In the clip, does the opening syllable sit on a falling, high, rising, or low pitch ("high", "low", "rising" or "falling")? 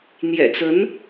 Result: low